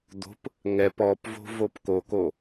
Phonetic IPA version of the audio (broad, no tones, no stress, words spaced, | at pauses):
d̪o̤p | ŋɛp ɔpvo̤ vopkoko